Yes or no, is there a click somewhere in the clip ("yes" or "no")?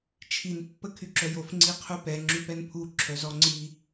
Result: yes